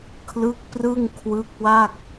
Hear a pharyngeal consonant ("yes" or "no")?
no